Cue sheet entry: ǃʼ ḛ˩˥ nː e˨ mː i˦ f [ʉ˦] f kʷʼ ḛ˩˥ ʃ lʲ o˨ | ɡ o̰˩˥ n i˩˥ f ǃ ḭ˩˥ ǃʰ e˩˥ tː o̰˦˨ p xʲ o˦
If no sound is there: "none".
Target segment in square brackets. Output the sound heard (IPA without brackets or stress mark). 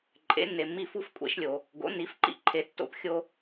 u˦